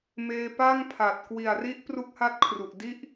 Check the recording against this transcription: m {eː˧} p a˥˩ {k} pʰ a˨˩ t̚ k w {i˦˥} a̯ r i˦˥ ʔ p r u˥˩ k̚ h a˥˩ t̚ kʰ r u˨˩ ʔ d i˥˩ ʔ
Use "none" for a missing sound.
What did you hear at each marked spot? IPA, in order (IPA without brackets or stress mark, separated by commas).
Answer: eː˧, ŋ, i˨˩